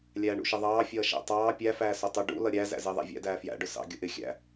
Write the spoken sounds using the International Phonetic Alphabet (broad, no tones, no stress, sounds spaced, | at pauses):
lʲ æː ɳ ṵ ʃ ɪ ðˤ ɑː fʲ ʌː ʃ æ̰ tˤ ɑː pʲ æ f æː s ʊ tˤ ʊ ɖ ṵ l ʌ ɾʲ æ z æ̰ z ɪː ðˤ æ̰ vʲ æ̰ d æː f j æ̰ ɖ ʊ s ɑ̰ ɡʲ ʊ ʔ ɪ xʲ æ̰